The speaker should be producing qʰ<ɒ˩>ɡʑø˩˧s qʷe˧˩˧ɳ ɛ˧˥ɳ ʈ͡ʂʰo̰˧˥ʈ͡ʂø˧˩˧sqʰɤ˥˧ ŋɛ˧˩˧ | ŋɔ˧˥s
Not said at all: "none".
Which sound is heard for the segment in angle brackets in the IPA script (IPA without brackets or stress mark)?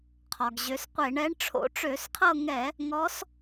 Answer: ɒ˩